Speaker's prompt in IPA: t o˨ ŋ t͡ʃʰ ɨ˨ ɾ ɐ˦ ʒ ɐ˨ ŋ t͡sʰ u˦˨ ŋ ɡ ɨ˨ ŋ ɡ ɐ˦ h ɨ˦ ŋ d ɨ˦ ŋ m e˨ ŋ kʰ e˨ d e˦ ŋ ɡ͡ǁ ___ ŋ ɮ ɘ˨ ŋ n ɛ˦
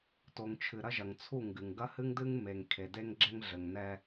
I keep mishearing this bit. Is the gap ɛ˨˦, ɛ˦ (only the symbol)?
ɛ˦